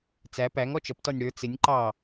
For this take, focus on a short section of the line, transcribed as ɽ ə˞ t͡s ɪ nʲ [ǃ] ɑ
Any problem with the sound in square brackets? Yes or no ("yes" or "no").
no